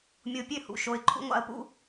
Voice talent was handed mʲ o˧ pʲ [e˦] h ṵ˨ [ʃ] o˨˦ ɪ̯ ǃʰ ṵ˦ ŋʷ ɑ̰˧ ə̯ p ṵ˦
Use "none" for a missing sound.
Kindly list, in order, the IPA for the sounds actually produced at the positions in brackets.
ø˦, ʃ

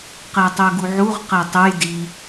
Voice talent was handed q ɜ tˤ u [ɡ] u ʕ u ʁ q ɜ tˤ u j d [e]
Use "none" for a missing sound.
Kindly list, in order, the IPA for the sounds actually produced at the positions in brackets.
ɡ, i

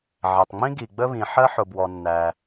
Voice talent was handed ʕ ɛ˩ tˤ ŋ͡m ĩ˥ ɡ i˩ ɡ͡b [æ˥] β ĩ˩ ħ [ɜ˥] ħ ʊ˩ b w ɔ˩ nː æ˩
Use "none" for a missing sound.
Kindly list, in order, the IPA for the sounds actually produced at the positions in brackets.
ə˥, ɜ˥

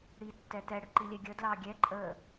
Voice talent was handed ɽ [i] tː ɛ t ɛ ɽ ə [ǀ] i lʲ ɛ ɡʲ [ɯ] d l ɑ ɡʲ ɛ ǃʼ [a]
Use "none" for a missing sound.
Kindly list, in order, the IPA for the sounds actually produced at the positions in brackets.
i, ǃ, ə, ə

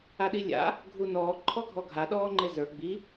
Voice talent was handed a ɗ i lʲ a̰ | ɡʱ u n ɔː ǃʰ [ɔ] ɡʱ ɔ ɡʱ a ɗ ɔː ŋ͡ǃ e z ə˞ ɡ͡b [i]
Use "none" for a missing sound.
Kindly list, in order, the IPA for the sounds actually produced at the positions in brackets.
ɔ, i

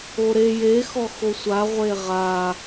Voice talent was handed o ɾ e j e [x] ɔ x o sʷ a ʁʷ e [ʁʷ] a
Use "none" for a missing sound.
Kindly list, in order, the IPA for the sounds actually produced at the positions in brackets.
x, ʁ

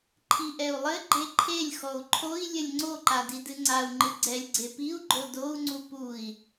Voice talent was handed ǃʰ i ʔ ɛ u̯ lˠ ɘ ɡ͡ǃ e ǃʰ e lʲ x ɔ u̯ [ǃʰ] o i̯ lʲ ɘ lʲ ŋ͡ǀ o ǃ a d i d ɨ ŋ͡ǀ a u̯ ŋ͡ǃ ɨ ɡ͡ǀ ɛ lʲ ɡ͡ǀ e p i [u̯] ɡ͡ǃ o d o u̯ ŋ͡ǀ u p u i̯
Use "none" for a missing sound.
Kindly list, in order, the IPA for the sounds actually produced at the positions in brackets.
ǃʰ, u̯

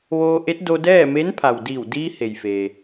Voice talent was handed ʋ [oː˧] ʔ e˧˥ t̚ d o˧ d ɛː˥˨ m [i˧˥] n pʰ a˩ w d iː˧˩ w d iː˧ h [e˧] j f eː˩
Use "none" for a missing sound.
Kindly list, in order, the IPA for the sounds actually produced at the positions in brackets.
oː˧, e˧˥, e˩

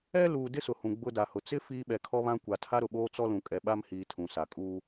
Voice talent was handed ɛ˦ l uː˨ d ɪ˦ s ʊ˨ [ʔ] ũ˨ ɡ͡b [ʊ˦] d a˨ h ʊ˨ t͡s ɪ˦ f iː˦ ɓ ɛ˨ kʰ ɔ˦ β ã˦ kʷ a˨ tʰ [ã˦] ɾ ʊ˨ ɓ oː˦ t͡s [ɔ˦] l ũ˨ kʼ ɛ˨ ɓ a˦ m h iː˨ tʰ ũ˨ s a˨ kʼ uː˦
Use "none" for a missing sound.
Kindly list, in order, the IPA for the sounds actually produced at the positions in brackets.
h, ʊ˦, a˦, ɔ˦

